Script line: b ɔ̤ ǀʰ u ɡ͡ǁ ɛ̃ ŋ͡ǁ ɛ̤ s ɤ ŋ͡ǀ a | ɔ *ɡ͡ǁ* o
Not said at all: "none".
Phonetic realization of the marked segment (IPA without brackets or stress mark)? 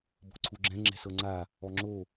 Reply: ŋ͡ǁ